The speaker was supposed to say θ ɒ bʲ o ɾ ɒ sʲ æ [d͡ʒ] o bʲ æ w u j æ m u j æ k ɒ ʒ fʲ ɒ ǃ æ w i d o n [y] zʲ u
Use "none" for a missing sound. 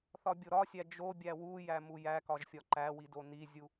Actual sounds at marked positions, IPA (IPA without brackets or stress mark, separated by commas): d͡ʒ, i